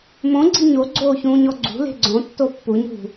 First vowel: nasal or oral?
nasal